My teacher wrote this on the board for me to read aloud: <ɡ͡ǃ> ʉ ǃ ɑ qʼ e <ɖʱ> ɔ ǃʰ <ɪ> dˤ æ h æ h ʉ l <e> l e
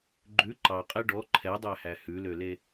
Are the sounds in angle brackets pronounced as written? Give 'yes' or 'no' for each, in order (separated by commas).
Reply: yes, no, no, no